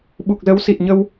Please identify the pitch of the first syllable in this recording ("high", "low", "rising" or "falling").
low